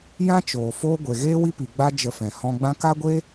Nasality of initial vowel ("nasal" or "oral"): nasal